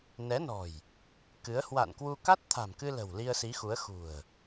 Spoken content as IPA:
n ɛ˨˦ n ɔ̤˨˩ j | k ɨ˨˦ ə̯ h w a̰˧˨ n k w u˧ k a˦˥ t̚ t̪ʰ a̤˨˩ m k ɨ˧ l ə̤˨˩ w l i˧ ə̯ s i˨˦ x u˨˦ ə̯ x ṳ˨˩ ə̯

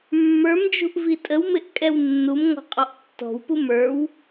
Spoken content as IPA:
mː ə˞ m d͡ʒ ṳ ʔ v i tʼ ə w m ɪ ʔ kʼ ɛ w nː u m ŋ ɔ̤ qʼ ɔ ʔ tː ɔ̤ w p u m ə˞ w

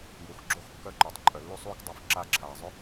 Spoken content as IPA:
j u˨ x ɡ͡ǁ o˦˨ x kː œ˦ ǃ ʏː˨ tˤ ǃʼ œ˨ lː u˦ sˤ uː˦ k dˤ œ˦ f ǁ a˦˨ ǁʰ aː˨ zˤ ʏ˦

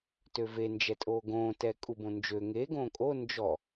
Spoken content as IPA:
t ø v e n d͡ʒ ɛ tʼ oː ɡ õː t ɛ kʼ u b õ n d͡ʒ ø ŋ e ɡ õː kʼ o n d͡ʒ ɔ

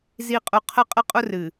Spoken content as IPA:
z i˨ qʼ ʊ˨ qʰ ə˦ qʼ ə˦ qʼ ʊ˦ r ɨ˨

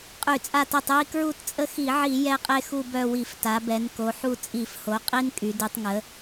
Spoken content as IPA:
qʼ y˧˩˧ t͡sʼ a˦˨ t e˦˨ tˤ j i˦ k ɹ u˦˨ t t͡sʼ ə˦ x i˧˩˧ ʕ i˧˩˧ j ɛ˦ qʼ e˦ x u˦˨ b œ˦˨ w i˧˩˧ f t a˩˧ b ɛ˩˧ n k o˩˧ ħ u˦˨ t͡sʼ i˧˩˧ f h o˩˧ qʼ i˦ n kʼ y˩˧ d y˩˧ tˤ ŋ ə˩˧

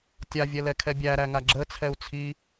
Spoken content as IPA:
tʲ a vʲ ɛ l ɛ kʰ ɛ bʲ æ ɾ æ ŋ a ɡ͡ǁ ə t͡sʰ ɛ u̯ t͡sʰ i

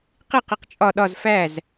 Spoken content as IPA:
q i q i q t͡ʃʼ ɒ ɗ ɒ z f æ z

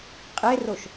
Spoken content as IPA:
qʼ e r o ʃ

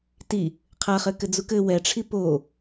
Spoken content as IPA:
t i | qʰ a χ ɘ k ɘ d͡z u k ɘ w ɛ ʈ͡ʂʰ i p o

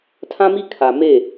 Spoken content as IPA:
tʰ ã˦ m i˦ kʰ a˨ m e˦˨

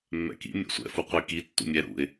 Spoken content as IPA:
mː ɛ̰ k ḭ mʲ ɛ̰ sʷ ɛ̰ f u qʷ i k i tː ṵ mʲ ɛ ɾ ṵ ɪ̯

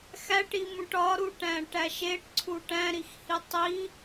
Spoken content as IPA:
x æ ʈ i m ũ ʈ ɒ ɾ u ʈ æ̃ ʈ æ ʃ e ʈ ǀʰ u ʈ æ̃ ɾ i x h i tˤ i

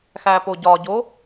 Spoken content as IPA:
x æ p o ɟ ɒ ɟ o

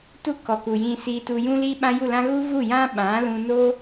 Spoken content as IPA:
t u˦ k ɔ˨ k u˨ j ĩ˧ s iː˧ t u˧ j ũ˦ l i˦ ɓ ã˦ j u˦˨ l ã˦ ɣ u˦ v u˦˨ j ã˦ ɓ ã˨˦ l ũ˧ n o˦

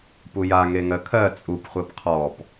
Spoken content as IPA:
p u j a ŋ e ŋ ɜ kʰ ɜ t͡sʼ u p χʷ ɜ p qʰ ɔ p

